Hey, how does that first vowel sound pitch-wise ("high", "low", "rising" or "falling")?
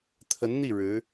rising